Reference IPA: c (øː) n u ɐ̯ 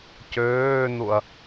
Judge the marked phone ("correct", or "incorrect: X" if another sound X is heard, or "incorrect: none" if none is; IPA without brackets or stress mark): correct